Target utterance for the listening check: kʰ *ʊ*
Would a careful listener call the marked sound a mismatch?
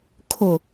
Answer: no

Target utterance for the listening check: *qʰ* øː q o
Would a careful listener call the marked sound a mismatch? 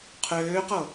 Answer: no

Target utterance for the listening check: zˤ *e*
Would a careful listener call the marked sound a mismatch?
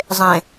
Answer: yes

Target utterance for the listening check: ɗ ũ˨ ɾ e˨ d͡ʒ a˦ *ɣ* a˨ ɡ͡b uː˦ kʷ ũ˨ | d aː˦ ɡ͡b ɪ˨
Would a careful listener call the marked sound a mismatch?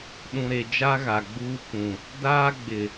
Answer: no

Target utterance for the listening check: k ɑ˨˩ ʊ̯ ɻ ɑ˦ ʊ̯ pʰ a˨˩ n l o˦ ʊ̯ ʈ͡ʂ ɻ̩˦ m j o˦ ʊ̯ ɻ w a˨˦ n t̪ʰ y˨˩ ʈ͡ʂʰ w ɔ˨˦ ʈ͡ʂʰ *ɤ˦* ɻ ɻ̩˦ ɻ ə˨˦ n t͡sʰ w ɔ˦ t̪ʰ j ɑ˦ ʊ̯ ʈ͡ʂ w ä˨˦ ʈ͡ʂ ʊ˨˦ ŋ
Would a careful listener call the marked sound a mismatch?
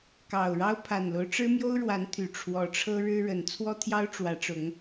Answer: no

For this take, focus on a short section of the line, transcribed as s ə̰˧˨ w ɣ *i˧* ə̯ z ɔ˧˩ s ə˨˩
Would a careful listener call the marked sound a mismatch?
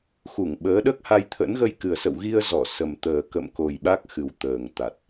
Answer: no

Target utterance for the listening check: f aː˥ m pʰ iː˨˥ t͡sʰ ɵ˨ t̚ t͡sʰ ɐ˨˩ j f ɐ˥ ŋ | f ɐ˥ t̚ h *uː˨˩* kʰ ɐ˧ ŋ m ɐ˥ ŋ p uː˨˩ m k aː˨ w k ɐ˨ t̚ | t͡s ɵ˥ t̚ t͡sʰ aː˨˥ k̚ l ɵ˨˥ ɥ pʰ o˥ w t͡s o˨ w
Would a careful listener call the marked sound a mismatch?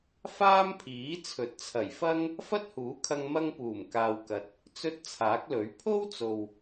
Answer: yes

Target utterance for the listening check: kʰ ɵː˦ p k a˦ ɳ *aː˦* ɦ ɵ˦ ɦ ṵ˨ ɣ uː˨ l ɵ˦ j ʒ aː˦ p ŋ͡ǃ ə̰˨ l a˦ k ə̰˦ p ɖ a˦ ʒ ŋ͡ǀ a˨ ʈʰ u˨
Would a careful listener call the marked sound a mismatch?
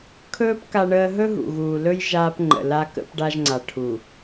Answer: yes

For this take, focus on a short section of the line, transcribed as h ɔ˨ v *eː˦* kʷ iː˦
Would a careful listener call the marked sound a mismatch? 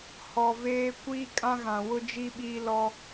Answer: no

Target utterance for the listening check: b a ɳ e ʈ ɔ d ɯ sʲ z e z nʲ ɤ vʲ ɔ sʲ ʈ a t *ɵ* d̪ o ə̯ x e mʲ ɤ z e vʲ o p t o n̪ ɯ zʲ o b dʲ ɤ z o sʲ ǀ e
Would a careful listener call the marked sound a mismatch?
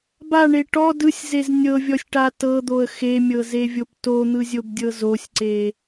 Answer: yes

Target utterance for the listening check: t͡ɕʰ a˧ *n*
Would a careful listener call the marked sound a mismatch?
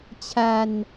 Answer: no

